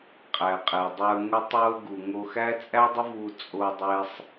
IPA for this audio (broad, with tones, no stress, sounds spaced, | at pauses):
qʼ æ˩ qʼ e˩ dˤ ə˞˧ ŋ ʊ˧ tˤ o˧ ə̯ ɡ u˩ ŋ o˧ x æ˥ t͡sʼ æ˥ dˤ ʊ˥ v u˧ t͡sʼ o˧ dˤ e˧ sˤ